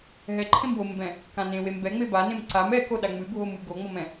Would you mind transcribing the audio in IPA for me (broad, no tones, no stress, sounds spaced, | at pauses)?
ɦ ɛ ǃʰ ẽ m w o m b ɛ̃ | k ã n ẽ w e m b ɛ ŋ͡m e b a n ẽ m ǀ a m ɛ k o ɗ a ŋ͡m ɨ bʱ o m ɨ ɡ o ŋ͡m ɔ m ɛ̃